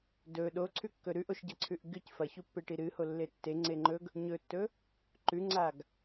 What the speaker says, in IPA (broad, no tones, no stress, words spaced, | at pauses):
dɵ ɗoǀʰʉkːɵ ɾʉʔoʃɟɐǀʰʉʔ ɡɨc fɐçupːeʈi ɾɨholːe tːeŋ͡ǀe ŋ͡ǃɵɡ | ɲɵtːɵ | ǃʉŋ͡ǀaɡ